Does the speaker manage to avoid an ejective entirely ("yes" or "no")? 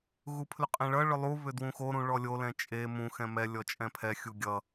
no